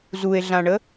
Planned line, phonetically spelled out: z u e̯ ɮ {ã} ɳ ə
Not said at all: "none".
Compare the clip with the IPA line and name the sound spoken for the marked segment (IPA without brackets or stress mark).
ã